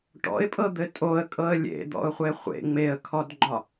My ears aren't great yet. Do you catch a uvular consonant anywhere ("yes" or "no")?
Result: yes